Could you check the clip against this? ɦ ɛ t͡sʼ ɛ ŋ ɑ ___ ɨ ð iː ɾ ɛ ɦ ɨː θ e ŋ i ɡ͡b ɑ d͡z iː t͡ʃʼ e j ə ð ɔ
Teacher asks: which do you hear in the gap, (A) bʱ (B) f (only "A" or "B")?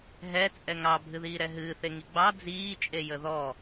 A